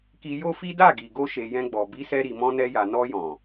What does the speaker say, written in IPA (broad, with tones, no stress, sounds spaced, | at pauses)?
k i˧ j o˦ f i˦ d a˦˨ ɡ i˨ ɡ o˧ ʃ e˨ j ɛ̃˧ ɡ͡b ɔ˨ b i˨˦ s ɛ˧ ɾ i˨ m ɔ̃˧ n ɛ˧ j a˨ n ɔ˧ j ɔ̃˨